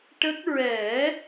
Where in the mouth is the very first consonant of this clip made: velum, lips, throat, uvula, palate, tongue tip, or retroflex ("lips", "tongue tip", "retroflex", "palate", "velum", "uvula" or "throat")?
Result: retroflex